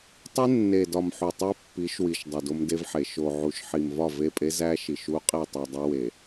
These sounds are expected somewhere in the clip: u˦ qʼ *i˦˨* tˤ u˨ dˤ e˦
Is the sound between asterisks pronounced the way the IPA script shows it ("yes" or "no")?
yes